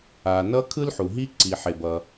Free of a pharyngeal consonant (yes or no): no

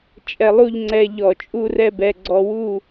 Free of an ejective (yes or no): no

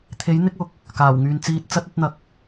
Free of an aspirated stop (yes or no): no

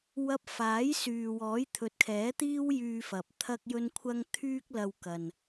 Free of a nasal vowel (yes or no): yes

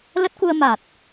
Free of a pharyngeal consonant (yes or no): yes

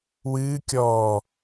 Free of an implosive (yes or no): yes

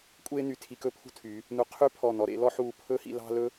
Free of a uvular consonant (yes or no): no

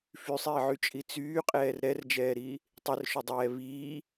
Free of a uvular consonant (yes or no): no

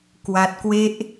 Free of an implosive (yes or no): yes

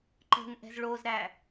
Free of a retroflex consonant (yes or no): no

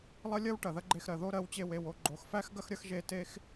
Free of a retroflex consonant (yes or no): no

